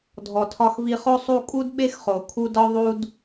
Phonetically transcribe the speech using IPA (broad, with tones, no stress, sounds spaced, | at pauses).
dʱ ɔ˩ tʰ ɒ˨ x v i˨ χ o˦ sˤ u˦ kʼ u˥ d ɓ e˥ x χ o˩ kʰ u˦ d ɒ˥ ðˤ u˦ d